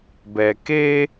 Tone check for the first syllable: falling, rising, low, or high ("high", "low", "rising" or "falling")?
low